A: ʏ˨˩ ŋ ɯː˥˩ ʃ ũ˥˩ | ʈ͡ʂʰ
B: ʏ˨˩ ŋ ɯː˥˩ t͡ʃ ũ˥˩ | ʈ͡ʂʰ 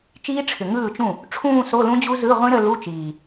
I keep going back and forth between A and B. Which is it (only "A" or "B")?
B